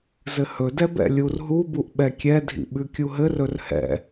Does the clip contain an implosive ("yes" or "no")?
yes